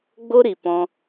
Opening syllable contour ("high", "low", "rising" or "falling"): high